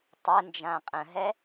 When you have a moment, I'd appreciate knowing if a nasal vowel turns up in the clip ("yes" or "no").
yes